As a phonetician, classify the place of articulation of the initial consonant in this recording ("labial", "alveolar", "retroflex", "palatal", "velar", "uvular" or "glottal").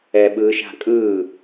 labial